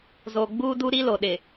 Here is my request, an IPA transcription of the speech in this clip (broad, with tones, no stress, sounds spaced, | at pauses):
z oː˨ ɡ͡b uː˦ d u˦ ɾ i˦ l o˨ ɗ ɪ˨